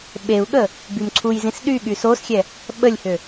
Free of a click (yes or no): no